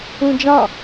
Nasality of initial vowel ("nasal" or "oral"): nasal